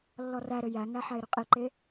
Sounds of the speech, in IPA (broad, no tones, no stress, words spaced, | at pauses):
lːɔræɾɘ jæŋæ ħæɪ̯ɾøqʼiǃe